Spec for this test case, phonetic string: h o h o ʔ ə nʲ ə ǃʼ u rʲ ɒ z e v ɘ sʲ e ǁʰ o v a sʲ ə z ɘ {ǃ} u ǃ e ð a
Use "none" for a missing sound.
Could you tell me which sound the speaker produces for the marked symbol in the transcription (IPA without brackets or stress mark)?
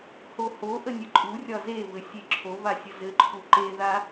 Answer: ǃʰ